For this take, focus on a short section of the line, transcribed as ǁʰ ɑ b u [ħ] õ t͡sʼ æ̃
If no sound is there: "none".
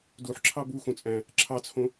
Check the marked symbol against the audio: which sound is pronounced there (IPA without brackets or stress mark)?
x